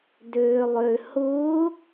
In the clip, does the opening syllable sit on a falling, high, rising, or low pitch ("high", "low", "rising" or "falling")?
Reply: low